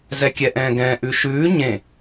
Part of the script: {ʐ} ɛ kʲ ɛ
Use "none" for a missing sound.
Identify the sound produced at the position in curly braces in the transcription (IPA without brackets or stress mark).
z